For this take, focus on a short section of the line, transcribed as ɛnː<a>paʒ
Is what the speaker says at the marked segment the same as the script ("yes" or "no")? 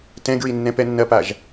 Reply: no